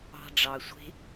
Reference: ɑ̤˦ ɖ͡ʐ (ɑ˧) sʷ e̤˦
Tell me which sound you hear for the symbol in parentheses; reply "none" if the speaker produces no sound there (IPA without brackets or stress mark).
ɑ˧